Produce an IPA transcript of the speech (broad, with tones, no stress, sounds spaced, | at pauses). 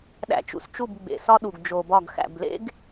ɗ æ̰˨ t͡ʃ ṵ˨ s t͡ʃ u˦˨ b ɡ͡b ḛ˨ s ɒ˦ ɗ u˨ ɡ d͡ʒ o˨ b ɒ˦˨ ɡ x æ̰˨ b l ḛ˦ ɡ